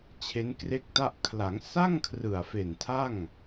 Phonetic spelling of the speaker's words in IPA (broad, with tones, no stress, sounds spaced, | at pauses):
t͡ɕʰ e˦˥ n k r e˥˩ k̚ t a˥˩ ʔ kʰ l a˩˦ ŋ s a˥˩ ŋ kʰ r ɯ˨˩ a̯ f e˨˩ n tʰ a˥˩ ŋ